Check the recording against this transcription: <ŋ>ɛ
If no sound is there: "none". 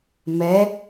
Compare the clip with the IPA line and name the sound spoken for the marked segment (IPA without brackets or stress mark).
m